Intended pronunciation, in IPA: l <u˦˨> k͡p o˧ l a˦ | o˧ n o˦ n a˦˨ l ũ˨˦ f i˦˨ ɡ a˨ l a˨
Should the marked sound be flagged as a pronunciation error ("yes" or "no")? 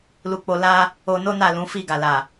yes